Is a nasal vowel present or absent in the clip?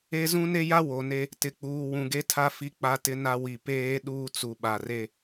present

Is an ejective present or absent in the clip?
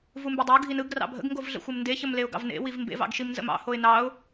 absent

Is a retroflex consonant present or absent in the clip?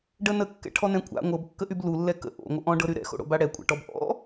present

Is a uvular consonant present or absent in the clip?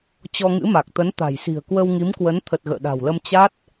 absent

